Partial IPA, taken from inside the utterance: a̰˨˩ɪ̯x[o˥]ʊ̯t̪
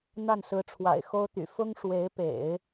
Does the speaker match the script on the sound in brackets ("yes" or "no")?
yes